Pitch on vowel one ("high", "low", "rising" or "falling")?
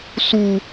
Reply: high